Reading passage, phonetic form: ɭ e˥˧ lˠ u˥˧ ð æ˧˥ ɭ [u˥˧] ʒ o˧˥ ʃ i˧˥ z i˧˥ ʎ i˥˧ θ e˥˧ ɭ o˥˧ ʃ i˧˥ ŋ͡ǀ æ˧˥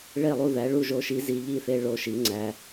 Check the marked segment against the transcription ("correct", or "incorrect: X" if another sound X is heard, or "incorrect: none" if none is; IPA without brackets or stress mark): correct